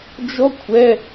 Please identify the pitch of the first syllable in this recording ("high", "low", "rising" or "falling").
high